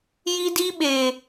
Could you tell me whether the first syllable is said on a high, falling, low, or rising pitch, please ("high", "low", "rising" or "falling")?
high